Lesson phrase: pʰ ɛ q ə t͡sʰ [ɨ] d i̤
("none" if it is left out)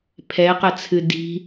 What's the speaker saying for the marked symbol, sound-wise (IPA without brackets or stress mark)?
ɨ